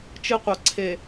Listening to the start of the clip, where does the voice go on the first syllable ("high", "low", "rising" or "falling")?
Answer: high